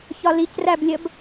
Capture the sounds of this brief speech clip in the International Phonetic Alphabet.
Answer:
ç ɒ l i c r æ b lʲ ə b

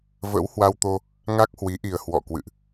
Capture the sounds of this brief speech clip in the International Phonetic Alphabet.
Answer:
v ə̰˧˥ w h w a˧ w t̪ o˧ | ŋ a˦˥ k̚ h w i˨˦ ʔ i˨˩ ə̯ h w ɔ̰˧˨ k w ɨ̰˧˨ ʔ

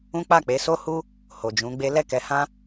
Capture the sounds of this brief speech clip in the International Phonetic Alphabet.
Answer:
ũ˦ k͡p a˦˨ k͡p e˨˦ s o˦ h u˦ | h o˨ d͡ʒ ũ˨˦ ɡ͡b e˦ l ɛ˦˨ k ɛ˨˦ h ã˦

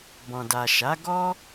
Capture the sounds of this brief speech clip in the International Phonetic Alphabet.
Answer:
b ɔ̃˨ d a˨ ʃ a˨˦ ɡ ɔ˦

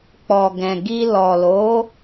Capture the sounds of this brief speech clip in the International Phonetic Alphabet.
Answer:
k͡p ɔ˨ ɡ ɛ̃˨ ɡ i˧ l ɔ˨ l o˨˦

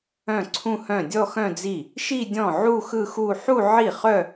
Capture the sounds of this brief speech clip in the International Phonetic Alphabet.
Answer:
œ̃˥˩ ǀʰ ũ˥˧ h œ̃˥˩ dʲ ɔ˥˧ x œ̃˥˧ d͡z i˥˩ | ʃ i˥˧ dʲ ɔ̃˥˩ ʕ u˥˧ x ɯ˥˧ x u˥˧ ħ u˥˧ ʕ i˥˩ χ œ˥˧

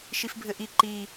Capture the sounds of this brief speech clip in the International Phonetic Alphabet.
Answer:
ʃ i f bʱ ɘ ʔ i ǃ i

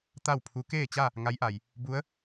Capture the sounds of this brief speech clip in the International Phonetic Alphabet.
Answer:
t̪ a˥˨ w pʰ u˧˥ k eː˥˨ t͡ɕ a˥˨ | ŋ a˧˥ j ʔ a˩ j | b u˧˥ ə̯

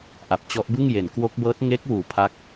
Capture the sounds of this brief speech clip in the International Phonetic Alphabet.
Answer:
ʔ a˨˩ p̚ t͡ɕ ɔ˦˥ ʔ b ɯ˥˩ ŋ j e˩˦ n k w o˦˥ k̚ b ɤː˦˥ t̚ ŋ e˦˥ k̚ w uː˨˩ pʰ a˦˥ k̚

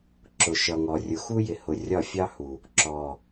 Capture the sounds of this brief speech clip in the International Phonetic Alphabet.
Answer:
ǁ ʊ˨ ʃ ʌ˨ ŋ ɔ˨ rʲ ʊ˨ x u˦ j ɪ˨ h ʊ˨ rʲ ɒ˦˨ fʲ ɑ˦ h u˨ | ǁ ɔ˨

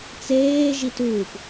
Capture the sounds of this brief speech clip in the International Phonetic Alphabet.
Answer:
t͡s eː ʒ i t uː p

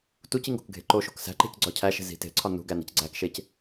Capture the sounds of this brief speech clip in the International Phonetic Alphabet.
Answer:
t u c i ŋ ɡ o̤ k ɡʱ e̤ ǃ o ʃ o̤ k s æ̤ ǃ e̤ c ɡ͡ǀ ɒ cʰ æ ʃ e̤ z i̤ t e̤ ǀʰ ɒ n ṳ ɡ æ n i̤ c ɡ͡ǀ æ k ʃ e c

